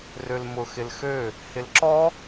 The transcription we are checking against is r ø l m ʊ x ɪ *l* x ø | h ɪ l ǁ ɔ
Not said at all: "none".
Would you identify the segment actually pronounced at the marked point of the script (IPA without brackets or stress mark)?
l